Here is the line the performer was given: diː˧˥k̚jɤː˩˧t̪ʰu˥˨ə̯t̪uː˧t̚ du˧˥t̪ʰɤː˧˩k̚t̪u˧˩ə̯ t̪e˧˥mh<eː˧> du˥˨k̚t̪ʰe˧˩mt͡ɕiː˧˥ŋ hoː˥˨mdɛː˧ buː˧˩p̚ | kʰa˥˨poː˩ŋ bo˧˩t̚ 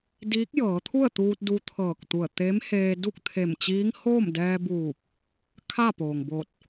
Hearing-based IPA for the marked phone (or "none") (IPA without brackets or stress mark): eː˧